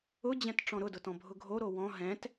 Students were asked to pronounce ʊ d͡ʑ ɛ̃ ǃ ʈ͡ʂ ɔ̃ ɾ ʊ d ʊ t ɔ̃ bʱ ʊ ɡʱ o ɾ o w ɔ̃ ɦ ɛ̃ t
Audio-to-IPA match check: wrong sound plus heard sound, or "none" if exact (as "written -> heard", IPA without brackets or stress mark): ǃ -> t